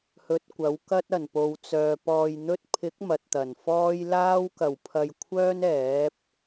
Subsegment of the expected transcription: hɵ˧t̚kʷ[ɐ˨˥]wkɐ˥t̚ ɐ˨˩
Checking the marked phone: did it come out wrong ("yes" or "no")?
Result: no